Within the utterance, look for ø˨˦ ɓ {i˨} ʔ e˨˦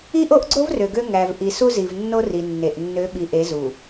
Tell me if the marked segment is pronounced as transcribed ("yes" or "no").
yes